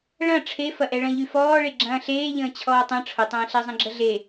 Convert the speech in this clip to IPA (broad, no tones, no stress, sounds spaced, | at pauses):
ɭ ɐ̃ ʈ͡ʂʰ e f ɐ ʔ ɛ ɭ ɐ̃ ʎ y f ɔː ɭ e ɡ͡ǁ ɐ̃ː ɬ eː ʎ ə̃ː t͡ɕʰ ɔː tˤ ɐ̃ ʈ͡ʂʰ ʊ tˤ ɐ̃ː ɬ ɛ zˤ ɐ̃ ɡ͡ǁ ə ɮ e